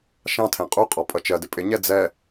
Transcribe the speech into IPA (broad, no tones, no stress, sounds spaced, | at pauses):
ʃ ɑ̃ tʰ ɛ̃ qʼ u qʼ ɔ pʼ ʌ t͡ʃ ɜ d ɪ pʼ ɪ ɲ ɛ d͡z ɛ